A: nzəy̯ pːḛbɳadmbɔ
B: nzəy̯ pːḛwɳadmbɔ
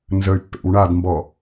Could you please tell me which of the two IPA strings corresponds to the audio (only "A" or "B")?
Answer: B